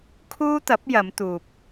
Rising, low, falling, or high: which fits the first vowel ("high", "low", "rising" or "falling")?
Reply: high